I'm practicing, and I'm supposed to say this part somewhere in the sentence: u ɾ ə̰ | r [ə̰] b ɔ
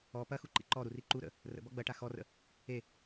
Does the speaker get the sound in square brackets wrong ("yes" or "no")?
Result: no